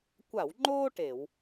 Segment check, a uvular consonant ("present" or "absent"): absent